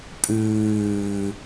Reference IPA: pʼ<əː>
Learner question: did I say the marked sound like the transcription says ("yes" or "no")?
no